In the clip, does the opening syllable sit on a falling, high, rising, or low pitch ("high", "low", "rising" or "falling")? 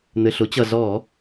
low